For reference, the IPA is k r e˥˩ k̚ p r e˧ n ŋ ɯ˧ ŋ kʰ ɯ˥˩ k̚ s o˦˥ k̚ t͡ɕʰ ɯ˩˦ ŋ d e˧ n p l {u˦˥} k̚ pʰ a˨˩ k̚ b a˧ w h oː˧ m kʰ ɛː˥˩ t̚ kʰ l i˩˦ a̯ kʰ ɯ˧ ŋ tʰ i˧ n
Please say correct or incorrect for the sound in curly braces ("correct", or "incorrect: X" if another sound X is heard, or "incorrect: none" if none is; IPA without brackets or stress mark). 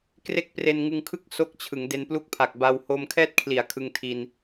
incorrect: u˥˩